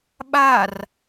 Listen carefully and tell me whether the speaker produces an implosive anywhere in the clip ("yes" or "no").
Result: yes